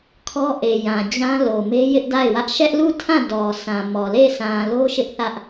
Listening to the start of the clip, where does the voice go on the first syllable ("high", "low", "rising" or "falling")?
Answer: high